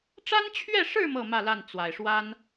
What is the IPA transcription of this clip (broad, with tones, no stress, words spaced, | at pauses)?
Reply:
ʈ͡ʂa˥nt͡ɕʰɥɛ˥˧ʂɻ̩˥˧ mɤ˥˧mä˥˧la˥˩n t͡swa˨˩ɪ̯ʂwa˥n